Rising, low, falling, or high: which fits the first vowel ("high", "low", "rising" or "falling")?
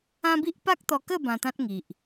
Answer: high